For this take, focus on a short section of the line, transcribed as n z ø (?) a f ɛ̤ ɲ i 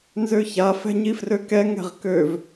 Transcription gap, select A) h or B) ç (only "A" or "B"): B